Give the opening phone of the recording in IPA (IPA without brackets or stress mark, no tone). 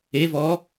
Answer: e